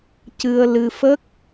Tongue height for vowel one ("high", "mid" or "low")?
high